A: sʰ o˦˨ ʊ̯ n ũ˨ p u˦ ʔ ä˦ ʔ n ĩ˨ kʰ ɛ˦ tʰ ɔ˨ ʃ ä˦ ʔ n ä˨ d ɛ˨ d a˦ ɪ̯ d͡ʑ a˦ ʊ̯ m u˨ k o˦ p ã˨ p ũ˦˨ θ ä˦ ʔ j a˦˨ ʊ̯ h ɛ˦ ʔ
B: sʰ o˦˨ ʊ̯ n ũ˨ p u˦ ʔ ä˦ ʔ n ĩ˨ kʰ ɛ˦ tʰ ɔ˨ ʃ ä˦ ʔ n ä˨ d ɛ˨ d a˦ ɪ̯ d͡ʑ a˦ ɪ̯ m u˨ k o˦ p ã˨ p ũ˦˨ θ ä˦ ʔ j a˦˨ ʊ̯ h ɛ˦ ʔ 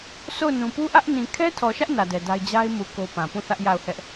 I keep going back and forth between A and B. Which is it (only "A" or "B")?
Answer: B